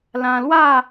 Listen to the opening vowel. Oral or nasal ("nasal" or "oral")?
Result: nasal